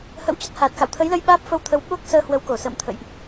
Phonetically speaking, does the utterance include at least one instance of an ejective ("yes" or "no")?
no